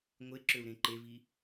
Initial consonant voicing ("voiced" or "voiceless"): voiced